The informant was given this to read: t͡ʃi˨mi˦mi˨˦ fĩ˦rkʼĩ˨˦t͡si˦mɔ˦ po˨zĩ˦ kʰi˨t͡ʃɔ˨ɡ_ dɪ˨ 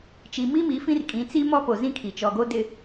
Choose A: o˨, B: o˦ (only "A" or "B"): B